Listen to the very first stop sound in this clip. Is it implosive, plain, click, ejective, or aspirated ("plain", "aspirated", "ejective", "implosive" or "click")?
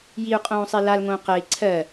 ejective